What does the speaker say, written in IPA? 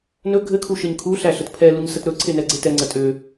n ɵ ɡʱ ɘ kʰ u ʃ ɘ ɲ kʰ u ɬ æ ɬ ə t pʰ ɛ l u ɲ s ə t ɾ ɵ ǀʰ e n ɛ ɡ͡ǀ e t ɛ ŋ͡ǀ ə tʼ ø

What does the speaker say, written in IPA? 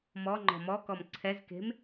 m ɔ ŋ͡ǃ ɔ̤ m ɔ k ɔ m ǀʰ ɛ z k e̤ m

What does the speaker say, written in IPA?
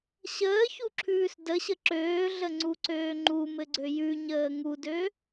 ɕ əː ç u ǁʰ ʉː s d ə ɕ ə ǁ øː ɮ ə ŋ͡ǀ u ǀ øː ŋ͡ǃ u m ɘ ɡ͡ǀ ø j ʉ ɲ əː ŋ u d ø

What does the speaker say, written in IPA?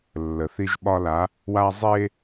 lː ə˨ θ i˦ ʒ ɓ ɒ˦ l a˨˦ | w a˦ zˤ e˦

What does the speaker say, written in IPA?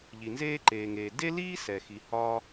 ʎ i˩ n z eː˥ ǃ eː˩ ŋ eː˩ d e˥ l iː˥ s ɛ˩ x i˩ h ɒ˥

